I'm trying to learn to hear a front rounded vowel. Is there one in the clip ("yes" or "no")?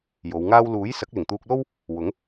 no